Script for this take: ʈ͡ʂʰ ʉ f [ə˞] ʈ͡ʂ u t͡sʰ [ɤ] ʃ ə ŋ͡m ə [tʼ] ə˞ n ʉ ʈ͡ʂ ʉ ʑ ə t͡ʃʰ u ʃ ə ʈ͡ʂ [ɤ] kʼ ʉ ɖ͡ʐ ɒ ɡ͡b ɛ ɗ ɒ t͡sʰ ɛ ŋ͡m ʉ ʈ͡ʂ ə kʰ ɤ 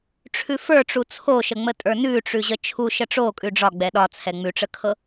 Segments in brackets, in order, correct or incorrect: correct, incorrect: o, correct, incorrect: o

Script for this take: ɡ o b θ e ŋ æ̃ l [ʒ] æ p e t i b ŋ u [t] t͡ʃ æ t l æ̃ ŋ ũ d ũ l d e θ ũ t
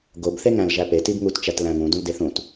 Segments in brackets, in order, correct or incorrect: correct, correct

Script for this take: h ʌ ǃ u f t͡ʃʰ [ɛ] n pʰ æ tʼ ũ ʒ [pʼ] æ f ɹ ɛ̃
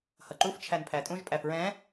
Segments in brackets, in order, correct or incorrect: incorrect: æ, correct

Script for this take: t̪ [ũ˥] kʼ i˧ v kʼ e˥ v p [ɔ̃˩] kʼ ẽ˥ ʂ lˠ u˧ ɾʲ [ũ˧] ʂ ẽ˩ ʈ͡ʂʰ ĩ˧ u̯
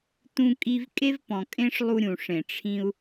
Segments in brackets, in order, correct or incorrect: incorrect: ũ˧, correct, incorrect: ũ˩

